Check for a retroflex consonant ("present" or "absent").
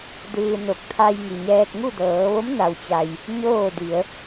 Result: absent